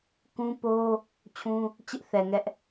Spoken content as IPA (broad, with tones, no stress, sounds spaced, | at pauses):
k ũ˦ p o˦ | t͡ɕʰ ũ˦ | t͡ɕ ɪ˦ ʔ θ ɛ˨ ŋ ɛ˦ ʔ